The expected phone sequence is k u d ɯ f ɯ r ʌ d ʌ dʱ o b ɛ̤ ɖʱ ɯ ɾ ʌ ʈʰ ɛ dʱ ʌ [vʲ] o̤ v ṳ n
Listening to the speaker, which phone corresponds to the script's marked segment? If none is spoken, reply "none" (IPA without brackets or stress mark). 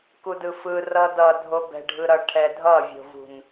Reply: vʲ